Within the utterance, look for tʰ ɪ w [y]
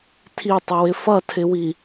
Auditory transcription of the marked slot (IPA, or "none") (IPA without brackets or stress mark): i